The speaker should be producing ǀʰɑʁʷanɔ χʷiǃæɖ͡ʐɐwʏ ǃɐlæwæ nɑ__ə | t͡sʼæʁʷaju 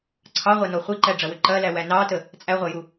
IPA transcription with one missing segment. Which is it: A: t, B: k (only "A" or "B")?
A